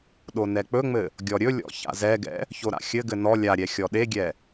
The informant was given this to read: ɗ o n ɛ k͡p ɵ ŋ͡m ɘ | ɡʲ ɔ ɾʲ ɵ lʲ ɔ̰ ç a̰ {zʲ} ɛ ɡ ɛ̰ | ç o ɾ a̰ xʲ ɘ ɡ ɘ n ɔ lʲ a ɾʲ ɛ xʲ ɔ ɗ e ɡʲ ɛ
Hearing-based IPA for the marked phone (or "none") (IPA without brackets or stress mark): z